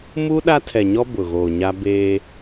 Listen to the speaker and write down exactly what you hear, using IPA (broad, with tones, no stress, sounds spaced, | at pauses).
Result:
m u˦ ɗ a˦ tʰ ɛ˨ ɲ ɔ˦ b ʊ˨ ɣ oː˨ ɲ a˦ b eː˦